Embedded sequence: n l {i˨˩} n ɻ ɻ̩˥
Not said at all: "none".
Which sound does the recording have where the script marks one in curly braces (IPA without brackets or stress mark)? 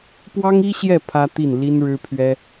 i˥